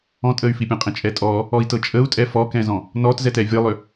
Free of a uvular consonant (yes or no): no